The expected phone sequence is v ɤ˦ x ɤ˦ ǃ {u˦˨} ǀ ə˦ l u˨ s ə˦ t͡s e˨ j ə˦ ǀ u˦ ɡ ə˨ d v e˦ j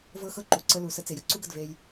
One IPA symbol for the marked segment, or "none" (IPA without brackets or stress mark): u˨